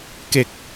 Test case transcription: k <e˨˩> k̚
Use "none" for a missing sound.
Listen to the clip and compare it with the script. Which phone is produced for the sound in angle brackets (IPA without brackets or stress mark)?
e˨˩